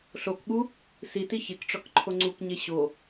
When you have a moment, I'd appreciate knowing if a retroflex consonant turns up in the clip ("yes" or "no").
yes